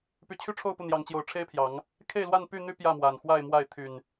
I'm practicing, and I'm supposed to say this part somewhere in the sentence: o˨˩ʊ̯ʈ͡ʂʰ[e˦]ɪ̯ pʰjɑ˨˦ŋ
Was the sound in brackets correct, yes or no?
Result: yes